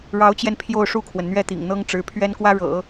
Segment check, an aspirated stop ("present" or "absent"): present